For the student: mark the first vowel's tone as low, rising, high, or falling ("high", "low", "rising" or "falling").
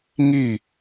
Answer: falling